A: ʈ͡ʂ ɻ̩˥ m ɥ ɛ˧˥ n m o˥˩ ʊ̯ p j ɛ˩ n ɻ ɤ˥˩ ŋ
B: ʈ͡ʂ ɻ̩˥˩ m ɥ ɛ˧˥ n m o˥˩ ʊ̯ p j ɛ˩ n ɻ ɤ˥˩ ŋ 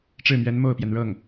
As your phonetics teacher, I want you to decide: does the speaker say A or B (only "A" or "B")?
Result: B